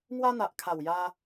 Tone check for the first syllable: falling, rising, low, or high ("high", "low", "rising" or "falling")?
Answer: high